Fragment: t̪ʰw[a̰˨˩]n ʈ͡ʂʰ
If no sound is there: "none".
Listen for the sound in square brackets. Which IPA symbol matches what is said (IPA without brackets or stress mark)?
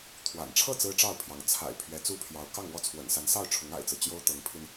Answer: a̰˨˩